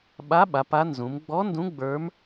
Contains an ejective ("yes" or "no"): no